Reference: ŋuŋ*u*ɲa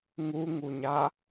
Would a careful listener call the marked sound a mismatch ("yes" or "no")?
no